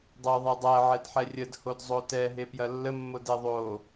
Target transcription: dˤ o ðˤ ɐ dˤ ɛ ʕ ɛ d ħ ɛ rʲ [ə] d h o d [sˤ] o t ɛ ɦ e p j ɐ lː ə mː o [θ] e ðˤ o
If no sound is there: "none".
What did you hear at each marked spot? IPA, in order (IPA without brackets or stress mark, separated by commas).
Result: ə, zˤ, d